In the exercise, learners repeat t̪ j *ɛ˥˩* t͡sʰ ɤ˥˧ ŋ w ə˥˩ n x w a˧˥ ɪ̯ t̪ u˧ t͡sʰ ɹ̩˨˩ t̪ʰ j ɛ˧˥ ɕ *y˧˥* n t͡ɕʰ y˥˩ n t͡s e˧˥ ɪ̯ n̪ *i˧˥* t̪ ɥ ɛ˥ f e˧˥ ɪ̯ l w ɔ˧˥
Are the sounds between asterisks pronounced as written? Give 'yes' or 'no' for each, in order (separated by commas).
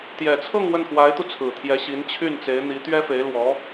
no, no, yes